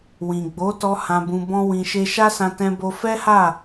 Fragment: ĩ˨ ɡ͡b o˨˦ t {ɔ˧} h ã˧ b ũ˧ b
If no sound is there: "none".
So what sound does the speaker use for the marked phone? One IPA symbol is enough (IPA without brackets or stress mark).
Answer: ɔ˧